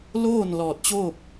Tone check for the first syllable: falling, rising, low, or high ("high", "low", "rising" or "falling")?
falling